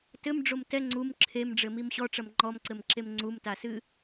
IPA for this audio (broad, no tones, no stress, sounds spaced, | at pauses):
t ɘ m ɖ͡ʐ o m t ɛ ŋ͡ǀ u m ǁʰ e m ɖ͡ʐ ɘ m i m ɕ ɔ ʈ͡ʂ ɐ m ŋ͡ǃ ɔ m ǀ ɘ m ǁ e m ŋ͡ǀ u m t a s ɨ